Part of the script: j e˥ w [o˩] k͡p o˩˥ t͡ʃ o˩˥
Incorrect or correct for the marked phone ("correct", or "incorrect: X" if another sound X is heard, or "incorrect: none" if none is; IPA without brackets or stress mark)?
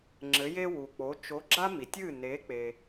incorrect: u˩